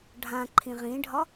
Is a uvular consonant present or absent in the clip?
present